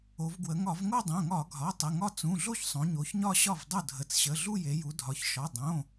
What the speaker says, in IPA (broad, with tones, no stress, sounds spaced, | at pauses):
o˩˧ v ɡ w ə˩˧ ŋ ɒ˧˩˧ v ŋ o˥˧ dˤ õ˩˧˩ ŋ ɒ˧˩˧ ɡʱ ɒ˩˧˩ tˤ ə˩˧˩ ŋ ɒ˥˧ t͡s ũ˩˧˩ ɮ o˥˧ ç sˤ õ˩˧ ɲ o˩˧ ç ɲ ɒ˥˧ ɕ ɒ˥˩ v dˤ o˥˩ dʱ ə˩˧˩ t͡s ɕ ə˩˧˩ ɮ u˥˧ j e˩˧ j u˩˧ dʱ ɒ˩˧ ç ʃ ɒ˩˧˩ dˤ õ˩˧˩